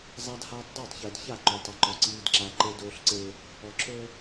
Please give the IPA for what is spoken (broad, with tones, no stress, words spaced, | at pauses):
zˤa˦dhaː˦tˤ dˤəː˦˨tˤçəː˨dça˦˨ǃoː˨tˤ ə˨ǃɔ˨ ǀiː˦dǁa˦ ǃe˦doː˦ɬǀeː˦ | ɔ˨ǁɵː˦